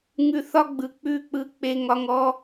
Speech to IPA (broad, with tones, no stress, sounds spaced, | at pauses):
ŋ ʉ˦ θ ɒ˦ ɡ͡b ɯ˨ k͡p ʉ˦˨ k͡p ɯ˦ k͡p e˦ ŋ ɒ˦ ŋ ɔ˦